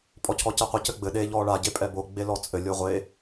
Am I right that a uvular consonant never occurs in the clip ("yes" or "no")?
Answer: no